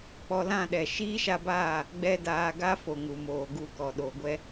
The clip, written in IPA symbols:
k͡p ɔ˧ l ã˦˨ ɗ ɛ˨ ʃ iː˦ ʃ a˧ b aː˦˨ | ɡ͡b ɛ˦ d aː˧ ɡ a˦ f o˨ ŋ u˨ m oː˨ ɡ u˦˨ k ɔ˨ ɗ o˨ ɡʷ ɛ˦

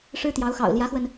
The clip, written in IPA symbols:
ʂ ɻ̩˥ t̪ j ɑ˧˥ ʊ̯ x ɑ̰˨˩ ʊ̯ l j ä˧˥ x w ə˧ n

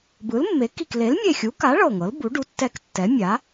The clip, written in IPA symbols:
b ɯ˩˥ l mː e˩˥ k i˧˩ k l e˩˥ l mʲ e˧˩ xʲ u˩˥ k a˩˥ ɭ ɤ˧˩ ŋ ɤ˩˥ l b u˩˥ ɖ u˩˥ tː ɛ˧˩ k tː ɛ˩˥ mʲ a˩˥

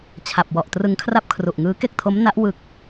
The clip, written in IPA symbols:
t͡ɕʰ a˨˩ p̚ w ɔ˨˩ ʔ t r ɯ˧ ŋ kʰ r a˥˩ p̚ kʰ r u˨˩ ʔ ŋ ɯː˦˥ k e˥˩ k̚ tʰ o˦˥ m n a˦˥ ʔ w ɯ˨˩ k̚

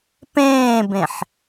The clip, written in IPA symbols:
p ẽː b ẽ ħ

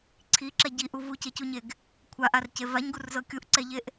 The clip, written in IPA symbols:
ǀʰ i ǁ ɛ ɟ i ʔ u v u c e c u ɲ e ɡ | kʷʰ a ʔ a r c e v a ɲ ɡ u r z ɤ kʲ u ʔ ǀ ɛ ʎ e ʔ

